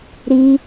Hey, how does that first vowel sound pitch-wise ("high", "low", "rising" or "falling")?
high